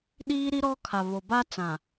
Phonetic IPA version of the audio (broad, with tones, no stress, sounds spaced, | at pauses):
ɗ iː˦ ɾ i˦ ɾ ɔ˦ kʰ a˨ β o˨ b a˦ t͡s ã˨